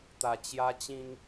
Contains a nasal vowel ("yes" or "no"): yes